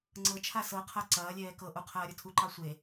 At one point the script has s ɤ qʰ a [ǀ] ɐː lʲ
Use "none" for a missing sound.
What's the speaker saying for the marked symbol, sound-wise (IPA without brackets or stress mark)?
ǀ